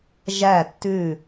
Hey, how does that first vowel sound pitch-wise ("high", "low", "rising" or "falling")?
falling